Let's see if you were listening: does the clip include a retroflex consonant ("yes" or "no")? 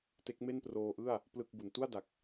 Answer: no